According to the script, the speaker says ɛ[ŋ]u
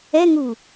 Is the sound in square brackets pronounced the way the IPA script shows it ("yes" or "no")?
yes